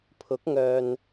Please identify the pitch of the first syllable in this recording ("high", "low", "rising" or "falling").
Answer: rising